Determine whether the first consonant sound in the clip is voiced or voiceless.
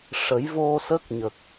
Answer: voiceless